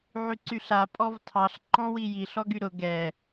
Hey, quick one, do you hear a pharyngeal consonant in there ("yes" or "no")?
yes